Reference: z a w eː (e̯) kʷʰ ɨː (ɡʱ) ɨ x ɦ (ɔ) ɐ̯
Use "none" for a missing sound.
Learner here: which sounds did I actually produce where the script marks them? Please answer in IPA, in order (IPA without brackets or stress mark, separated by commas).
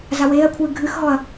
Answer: ɐ̯, ɡʱ, ɔ